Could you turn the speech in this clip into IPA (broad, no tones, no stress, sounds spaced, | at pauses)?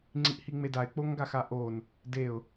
ŋ͡ǀ i ʔ h i ŋ͡m e d a ɪ̯ k͡p o ŋ ɡ a x a ʔ o n | d e ʊ̯